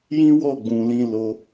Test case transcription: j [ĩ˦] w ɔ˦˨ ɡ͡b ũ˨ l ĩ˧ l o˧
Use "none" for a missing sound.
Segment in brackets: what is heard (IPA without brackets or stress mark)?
ĩ˦